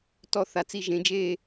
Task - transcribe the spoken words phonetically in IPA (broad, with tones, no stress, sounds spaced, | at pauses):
t ɔ˥˧ θ a˨˥ t͡s i˥˧ ʒ ẽ˨˥ d͡ʒ eː˥˧